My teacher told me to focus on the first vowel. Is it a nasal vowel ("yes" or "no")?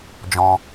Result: yes